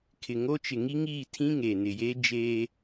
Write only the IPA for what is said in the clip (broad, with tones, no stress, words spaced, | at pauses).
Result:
kʰɪ˨ŋo˦t͡ʃɪ˨ ŋi˦ŋiː˦˨tʰĩ˦ŋeː˨ nɪ˨jeː˦d͡ʒeː˦